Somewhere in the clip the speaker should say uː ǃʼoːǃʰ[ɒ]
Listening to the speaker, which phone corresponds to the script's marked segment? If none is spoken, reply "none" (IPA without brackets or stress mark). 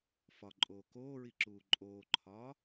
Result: ɒː